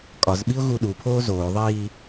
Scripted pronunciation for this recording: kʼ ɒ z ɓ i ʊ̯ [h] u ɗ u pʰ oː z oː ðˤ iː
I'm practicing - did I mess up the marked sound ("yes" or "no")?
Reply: yes